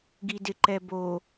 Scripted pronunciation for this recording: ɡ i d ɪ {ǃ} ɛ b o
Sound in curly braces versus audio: correct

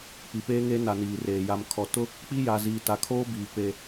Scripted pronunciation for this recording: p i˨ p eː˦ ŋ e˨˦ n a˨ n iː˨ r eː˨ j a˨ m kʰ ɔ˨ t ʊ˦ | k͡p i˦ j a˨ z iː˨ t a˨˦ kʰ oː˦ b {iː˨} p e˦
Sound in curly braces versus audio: correct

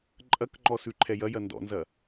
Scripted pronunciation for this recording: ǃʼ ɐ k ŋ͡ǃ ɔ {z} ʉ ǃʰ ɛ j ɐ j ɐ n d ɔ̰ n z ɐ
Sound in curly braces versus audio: incorrect: s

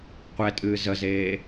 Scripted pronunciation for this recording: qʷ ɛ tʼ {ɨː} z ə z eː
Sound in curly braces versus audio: correct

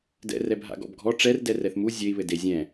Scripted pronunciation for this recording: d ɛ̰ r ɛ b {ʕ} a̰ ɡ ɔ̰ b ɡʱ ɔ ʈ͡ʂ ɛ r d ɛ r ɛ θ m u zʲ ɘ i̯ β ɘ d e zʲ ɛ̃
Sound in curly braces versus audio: incorrect: ɦ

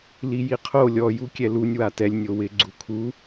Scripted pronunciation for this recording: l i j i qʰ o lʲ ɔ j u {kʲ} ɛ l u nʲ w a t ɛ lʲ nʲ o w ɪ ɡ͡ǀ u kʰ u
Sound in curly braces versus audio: correct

